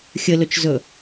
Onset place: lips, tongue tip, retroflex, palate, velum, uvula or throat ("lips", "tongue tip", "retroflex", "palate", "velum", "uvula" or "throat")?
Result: velum